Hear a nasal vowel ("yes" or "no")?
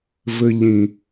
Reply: yes